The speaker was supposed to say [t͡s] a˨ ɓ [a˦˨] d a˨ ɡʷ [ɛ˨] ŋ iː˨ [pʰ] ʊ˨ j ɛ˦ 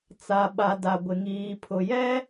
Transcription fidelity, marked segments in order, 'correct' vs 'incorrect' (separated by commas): correct, incorrect, incorrect, correct